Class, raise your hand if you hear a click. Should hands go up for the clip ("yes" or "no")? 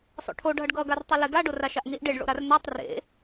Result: no